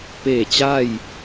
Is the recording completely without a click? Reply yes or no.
yes